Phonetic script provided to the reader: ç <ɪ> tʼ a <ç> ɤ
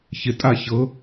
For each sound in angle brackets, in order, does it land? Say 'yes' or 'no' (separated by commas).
yes, yes